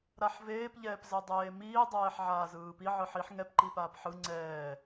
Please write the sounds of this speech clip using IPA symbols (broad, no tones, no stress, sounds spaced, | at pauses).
ɾ a ħ v eː p ʎ ɛː p z ɛ dˤ eː m iː dˤ ɛː ħ ʕ aː z ɯː p i ʕ ɯ ħ i ħ ŋ ɛ p ǃ i p aː p ħ ɯ ŋ͡ǀ ɛː